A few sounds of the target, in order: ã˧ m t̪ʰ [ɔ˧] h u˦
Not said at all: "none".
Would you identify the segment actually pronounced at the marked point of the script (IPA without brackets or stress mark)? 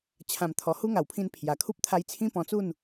ɔ˧